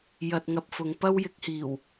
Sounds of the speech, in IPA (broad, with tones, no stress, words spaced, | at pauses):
jɐ˧t̚ŋɐ˧p̚fʊ˨˧ŋ pɐ˥wjɪ˨˥k̚hiː˨˩w